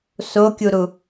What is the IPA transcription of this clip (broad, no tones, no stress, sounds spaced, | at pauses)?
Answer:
s o kʲ u ɾ u